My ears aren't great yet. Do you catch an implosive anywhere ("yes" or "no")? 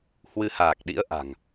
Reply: yes